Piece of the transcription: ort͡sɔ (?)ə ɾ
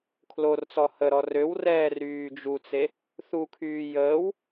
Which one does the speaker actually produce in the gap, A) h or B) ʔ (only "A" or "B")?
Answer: A